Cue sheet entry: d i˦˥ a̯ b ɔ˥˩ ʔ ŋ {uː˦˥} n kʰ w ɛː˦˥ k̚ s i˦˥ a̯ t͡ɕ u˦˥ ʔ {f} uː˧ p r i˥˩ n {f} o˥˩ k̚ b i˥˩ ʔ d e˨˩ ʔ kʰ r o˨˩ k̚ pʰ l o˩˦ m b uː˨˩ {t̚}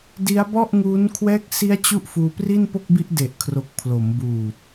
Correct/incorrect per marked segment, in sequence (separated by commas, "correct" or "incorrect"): correct, correct, incorrect, correct